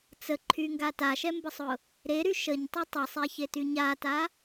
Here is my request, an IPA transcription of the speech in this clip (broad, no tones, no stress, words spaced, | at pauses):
t͡səǃʰyŋɡa taʃɛmbəsˤʊ | ɾeɾy ʃəɲtˤy tˤesˤɛçety ɲata